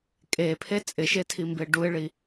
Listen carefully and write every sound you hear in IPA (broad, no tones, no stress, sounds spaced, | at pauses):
kʼ e pʰ e t͡sʼ ɪ ʃ e tʰ i m b e ɖ u ɪ̯ ɭ i